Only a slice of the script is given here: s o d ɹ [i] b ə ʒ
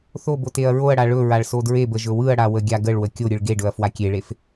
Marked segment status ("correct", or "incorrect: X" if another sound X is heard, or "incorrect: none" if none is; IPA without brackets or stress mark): incorrect: e